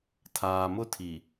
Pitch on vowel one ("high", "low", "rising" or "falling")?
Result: low